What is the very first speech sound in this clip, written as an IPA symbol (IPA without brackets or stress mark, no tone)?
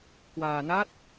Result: k